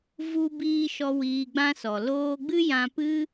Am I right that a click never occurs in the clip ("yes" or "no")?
yes